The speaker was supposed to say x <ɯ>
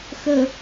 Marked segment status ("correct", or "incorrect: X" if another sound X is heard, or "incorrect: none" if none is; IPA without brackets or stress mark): incorrect: ə